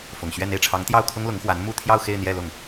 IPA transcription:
fʊ˨˩ŋɕɥɛ˥˧n e˥˩ɪ̯ʈ͡ʂʰɑ˧˥ŋt̪jɑ˥˩ʊ̯kʰʊ˥ŋ lʊ˧˥ŋxwa˧˥n mu˥˧t̪ʰjɑ˥˧ʊ̯ xe˥˧ɪ̯n̪jɛ˥˧lʊ˥˩ŋ

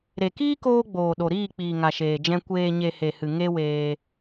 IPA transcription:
ɾe˨kiː˦koː˧ɡ͡boː˨ ɗo˨ɾiː˦˨k͡piː˨ ŋa˨ʃeː˨d͡ʒɛ̃˧ kʷeː˨ɲe˨ he˨hɨ˨ ŋe˦weː˧

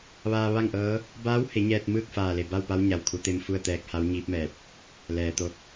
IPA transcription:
ʋaː˧ʋa˥˨ŋʔɤː˧˥ | baː˧˥whe˩˧ ɲɛː˧t̚mɯː˥˨k̚ faː˧˩le˧˩ ba˥˨wpa˧˥w ɲa˩wkʰu˩˧t̪e˧m fu˥˨ə̯t̪ɛː˧k̚ha˧˥w ɲiː˧˥p̚mɛː˧˩p̚ | lɛː˩t̪o˧k̚

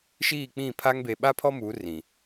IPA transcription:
ʃiː˦˨k͡pĩ˦˨pʰa˦ŋ be˨ɓa˦pʰɔ˦ mu˨˦ rĩ˨

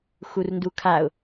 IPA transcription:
xurndukʰaʊ̯

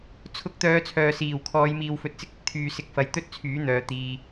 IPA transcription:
t͡sʰʊ˧k̚t̪œː˨˧ t͡sʰœː˨siː˨˩wkʰɔː˨˧j miː˨wfɵ˨t̚t͡sɪ˧k̚ ɪ˨k̚t̪ʰyː˧ sɪ˨˥k̚fɐ˨jt̪ɵ˥t̚ t͡sʰyː˨˥n̪œː˨ t̪iː˧

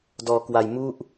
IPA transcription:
dɔː˧kwa˧j mu˥˩ʔ

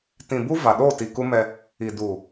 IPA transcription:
tĩ˨bu˦ va˨ɗo˦˨ti˨ ku˦mɛ˦ | i˨du˨

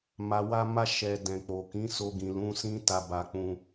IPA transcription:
ma˨wa˧ma˧ʃɛ˨ dɛ̃˨k͡po˨ kĩ˨˦so˧ɡĩ˨ lũ˨˦sĩ˦ ta˧ba˧k͡pũ˧

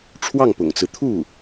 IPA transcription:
ʈ͡ʂʰwɑ˥˩ŋpʊ̰˨˩ŋt͡sɹ̩˦ t̪ʰu˥˩

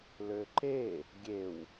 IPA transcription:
løǃe | ɡʲew

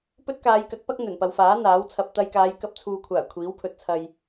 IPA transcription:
pɵ˥t̚kaː˨˧jkɐ˨˥k̚pɐ˥k̚ n̪ɵ˨˩npɐ˨wfaː˨˥ n̪aː˨˥wt͡sʰɐ˧p̚ t̪ɐ˧jkaː˨˧j kɐ˧p̚t͡sʰuː˨kʷʰaː˨˩ kʷʰiː˨˥wpʰɵ˨t̚t͡sʰɐ˧j

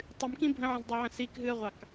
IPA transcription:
tˤɨmkĩ bʱə̃ʕə̃zdˤoʕə̃ sikɦɨə̯ʁʷɑk

